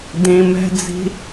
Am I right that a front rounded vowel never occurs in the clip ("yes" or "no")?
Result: yes